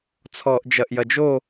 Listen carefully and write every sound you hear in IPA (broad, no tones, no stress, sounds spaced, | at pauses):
t͡sʰ ɔː ʔ d͡ʒ ɐ ʔ j ɐ d͡ʒ o